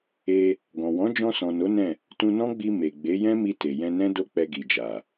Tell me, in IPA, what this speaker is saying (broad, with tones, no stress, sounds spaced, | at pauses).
e˧ | ɡ ɔ̃˨ w ɔ̃˨˦ d͡ʒ ɔ̃˧ s ɔ̃˨ n o˨˦ n ɛ̃˦˨ | t ũ˧ n ɔ̃˦ ɡ͡b i˧ m e˨ ɡ͡b e˨˦ j ɛ̃˦ m i˧ t e˨ j ɛ̃˧ n ɛ̃˦ d o˦ k͡p ɛ˧ ɡ i˨ d͡ʒ a˨